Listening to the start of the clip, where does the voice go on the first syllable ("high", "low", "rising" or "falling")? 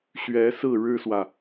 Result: rising